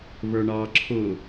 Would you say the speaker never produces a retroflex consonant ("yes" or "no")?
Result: no